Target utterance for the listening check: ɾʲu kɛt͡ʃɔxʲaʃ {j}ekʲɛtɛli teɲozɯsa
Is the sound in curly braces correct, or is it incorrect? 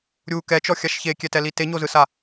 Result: incorrect